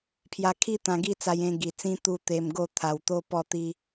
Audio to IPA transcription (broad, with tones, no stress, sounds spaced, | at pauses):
pʰ j a˧ kʰ i˦ t̪ ã˧ ɡ i˥˧ t͡s a˧ j ẽ˧ ɡ i˨˩ t͡s ĩ˧ t̪ u˧ t̪ e˧ m ɡ o˥˧ t̪ʰ a˧ w t̪ o˦ p ɔ˥˧ t̪ i˦